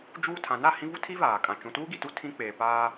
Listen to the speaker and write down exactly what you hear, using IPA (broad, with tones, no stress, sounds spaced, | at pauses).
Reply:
d͡ʒ uː˦ tʰ ã˨˦ n a˨ h ĩ˦ v u˦ tʰ i˦ v aː˨ kʼ ã˨ t͡ʃ ũ˨ t uː˦ ɡ i˨ t u˦ tʰ ĩ˦ k͡p eː˨ p aː˦